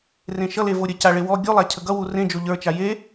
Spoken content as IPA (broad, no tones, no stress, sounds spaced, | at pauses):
r ẽ ʃ ʌ l e v o ɾʲ ə c a ɭ e w ɔ ɡʲ u lˠ a cʰ ə ɡ ʌ w u r ẽ d͡ʒ o ʎ ə˞ t͡ʃ a j e